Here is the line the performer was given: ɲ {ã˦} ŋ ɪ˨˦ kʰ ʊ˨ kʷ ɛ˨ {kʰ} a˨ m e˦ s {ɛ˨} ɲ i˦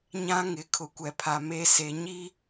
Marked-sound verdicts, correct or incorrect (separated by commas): correct, incorrect, incorrect